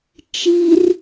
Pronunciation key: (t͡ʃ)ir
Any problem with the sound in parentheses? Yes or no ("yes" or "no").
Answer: no